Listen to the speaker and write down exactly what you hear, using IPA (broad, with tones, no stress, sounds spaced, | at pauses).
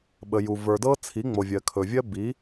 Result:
ɓ ə˨ j u˨ v ə˞˨ d ɤ˦ t͡sʰ i˨˦ ŋ͡m o˨ vʲ ɜ˨ kʰ ɵ˨ vʲ ɜ˦ b i˨˦